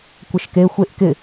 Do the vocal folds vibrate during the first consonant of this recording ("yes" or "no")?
no